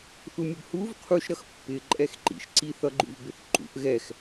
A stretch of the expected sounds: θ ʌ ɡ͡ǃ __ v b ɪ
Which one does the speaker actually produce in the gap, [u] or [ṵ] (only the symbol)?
ṵ